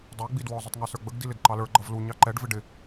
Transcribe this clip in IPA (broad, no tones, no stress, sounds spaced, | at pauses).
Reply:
dˤ ə˞ ɡ͡b i d w ɔ zˤ ʊ tˤ ŋ ɑ s ə˞ ɡ͡b ə ɡ d i l ɪ d ǃ ɑ l ə˞ ɡ͡ǃ ʌ v l u ɲ ɑ ǃ ɛ ɖ v ɪ ɖ ɪ